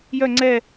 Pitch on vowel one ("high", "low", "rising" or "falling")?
falling